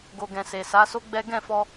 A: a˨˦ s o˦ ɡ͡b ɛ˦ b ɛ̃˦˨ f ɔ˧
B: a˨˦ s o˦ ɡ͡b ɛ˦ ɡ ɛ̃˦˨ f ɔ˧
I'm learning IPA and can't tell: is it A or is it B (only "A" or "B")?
B